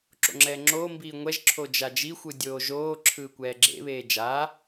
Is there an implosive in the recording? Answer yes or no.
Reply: no